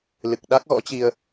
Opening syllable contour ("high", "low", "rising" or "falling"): low